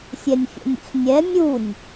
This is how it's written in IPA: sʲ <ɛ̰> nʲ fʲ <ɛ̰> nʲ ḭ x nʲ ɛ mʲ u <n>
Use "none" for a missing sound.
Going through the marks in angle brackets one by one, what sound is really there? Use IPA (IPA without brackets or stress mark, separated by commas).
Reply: ɛ, ɛ̰, nʲ